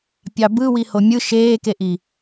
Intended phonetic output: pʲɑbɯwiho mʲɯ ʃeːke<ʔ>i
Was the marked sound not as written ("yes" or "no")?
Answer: no